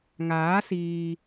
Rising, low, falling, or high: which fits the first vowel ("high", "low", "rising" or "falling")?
rising